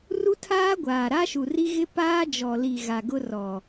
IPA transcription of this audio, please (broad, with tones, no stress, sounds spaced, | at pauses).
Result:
r u˦ tʰ aː˦ ɡʷ aː˨ ɾ a˦ ʃ u˨ r i˦ ɣ ɪ˦ p aː˦ d͡ʒ ɔ˨ l i˨ ɣ a˨ ɡ ʊ˦ r ɔ˨